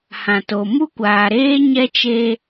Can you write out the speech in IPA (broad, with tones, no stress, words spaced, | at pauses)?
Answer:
hã˨to˨ mu˦kʷaː˨ɾeː˦ ɲɛ˦t͡ʃe˦